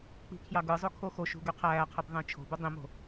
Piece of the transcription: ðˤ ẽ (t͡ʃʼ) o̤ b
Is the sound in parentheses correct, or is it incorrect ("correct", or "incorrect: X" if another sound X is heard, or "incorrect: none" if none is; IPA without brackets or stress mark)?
incorrect: t͡ʃʰ